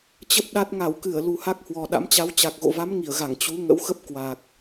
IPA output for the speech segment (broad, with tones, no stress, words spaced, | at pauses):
t͡ɕə˦˥p̚ɗa˦˥t̚ ŋa˧˩wkɨ˧˩ə̯ lu˨˩ha˦˥k̚ hwɔ˨˩ɗa̰˧˥mt͡ɕa˨˦w t͡ɕa˨˩k̚ɣo̰˧˨va˨˦m ŋi˧˩ə̯ɣa˧˩ŋ t͡ɕu˨˦ŋə̰˧˥wxə˦˥p̚ kwa˨˩k̚